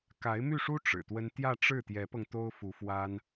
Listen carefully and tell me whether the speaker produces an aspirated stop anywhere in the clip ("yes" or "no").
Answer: no